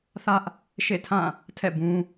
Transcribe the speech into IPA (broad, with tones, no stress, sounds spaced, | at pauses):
θ ä˦ ʔ | ʃ ḛ˦˨ tʰ ã˦˨ | tʰ ɛ̰˦˨ b ũ˦